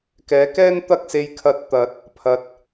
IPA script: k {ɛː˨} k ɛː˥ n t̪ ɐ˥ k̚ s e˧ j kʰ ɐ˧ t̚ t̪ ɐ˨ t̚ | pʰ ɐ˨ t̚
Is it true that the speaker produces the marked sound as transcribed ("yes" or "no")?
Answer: no